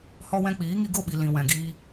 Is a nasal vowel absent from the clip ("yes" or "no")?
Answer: no